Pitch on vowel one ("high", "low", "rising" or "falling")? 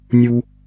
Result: high